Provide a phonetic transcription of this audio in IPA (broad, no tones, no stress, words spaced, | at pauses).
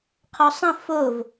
qʰɔsˤə̃ fov